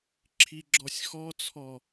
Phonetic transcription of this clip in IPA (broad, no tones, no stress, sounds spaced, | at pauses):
ǁʰ i ɡ͡ǁ ɔ sʲ x ɔ t͡sʰ ɔ